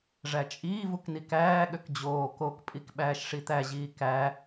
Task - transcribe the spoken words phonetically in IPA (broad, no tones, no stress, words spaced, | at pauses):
ʐæt͡ʃʼiːvuk nikæːɠøk d͡ʑoː kokpʼik ɓæːʃʂit̪æʑiː kæ